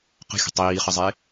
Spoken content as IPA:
qə̤xʲə̤ tˤiːχəzˤe

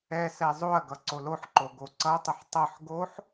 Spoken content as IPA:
ɛ sɛzˤoɐ̯ɡʌ ǀoloħǃo ɡoǀʌtˤəħ tˤʌħ ɡoħ

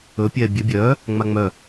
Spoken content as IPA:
ɵ pʲɛːbʲœ bʲœː | ŋ͡maŋ͡mœ

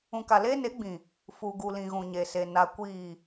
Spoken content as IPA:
ũ˨ka˨leː˦ ne˨˦ɡ͡bĩ˨ | fu˨ ɡu˨lĩ˨ ɣũ˨ɲe˨se˨ na˨ kʷiː˨

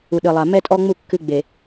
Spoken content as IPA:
u˨ɗɨ˨lˠa˨ mɛ˦tʼɔ˦ŋ͡mu˦˨ kːɨ˦ ɡ͡be˨

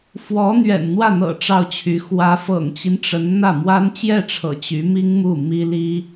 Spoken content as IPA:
fwɔ˧˥n̪ɥɛ̰˨˩n n̪wä˥˩n̪ɤ̰˨˩ ʈ͡ʂɑ˥˩ʊ̯t͡ɕʰy˧˥ xwä˧˥fɤ̰˨˩ŋt͡ɕi˦n ʈ͡ʂə˧˥n n̪ä˥˩mwa˥n t͡ɕjɛ˥˩ʈ͡ʂʰɤ̰˨˩ t͡ɕy˧˥mi˥ŋmu˥˩ mi˥ li˥

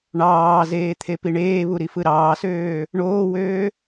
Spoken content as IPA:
ɳɑːzeː t̪ʰepiɳeːβu ɾifɯɾɑːsøː | ɳoːwøː

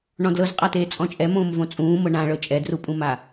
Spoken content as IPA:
ɳɔ̃dlɤzqʼateː t͡sʼɔ̃t͡ʃʼɛmõːm võt͡sʼũːmɤ ɳãɭɤ t͡ʃʼɛdrupʼũma

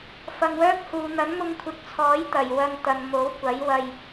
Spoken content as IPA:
fɐ˨ŋwœː˥k̚huː˨ n̪ɐ˨˥nmʊ˧ŋkʷʰɪ˨˥k̚t͡sʰɔː˨˥j t̪ɐ˨˩jwɐ˧ŋ t̪ɐ˨n mo˨˥wkʷɐ˨˥jwɐ˧j

